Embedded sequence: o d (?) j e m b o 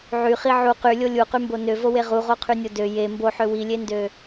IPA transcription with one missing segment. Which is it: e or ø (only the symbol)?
ø